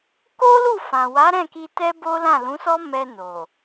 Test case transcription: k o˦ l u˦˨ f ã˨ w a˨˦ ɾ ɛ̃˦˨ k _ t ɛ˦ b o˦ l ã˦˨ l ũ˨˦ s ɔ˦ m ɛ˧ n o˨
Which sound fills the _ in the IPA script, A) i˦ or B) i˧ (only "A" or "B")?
B